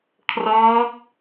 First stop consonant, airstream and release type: aspirated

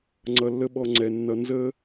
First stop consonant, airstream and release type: click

